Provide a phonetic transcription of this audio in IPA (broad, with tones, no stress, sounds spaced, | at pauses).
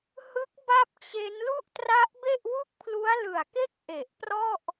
h ɯ˦˥ k̚ b a˥˩ p̚ t͡ɕ e˦˥ n l u˥˩ ʔ t r a˦˥ ʔ b e˥˩ ʔ w u˥˩ k̚ pʰ l u˦˥ a̯ l ɯ˨˩ a̯ k e˥˩ k̚ ʔ e˨˩ ʔ p r ɔ˥˩ ʔ